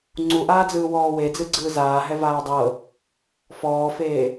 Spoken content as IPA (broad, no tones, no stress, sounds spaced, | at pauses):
ŋ͡ǀ u ʔ aː d͡z ɯː w ɔː w e d͡z ɯ ɡ͡ǀ ɯː z aː ɦ ɛ v aː dˤ ɤ | f ɔː f eː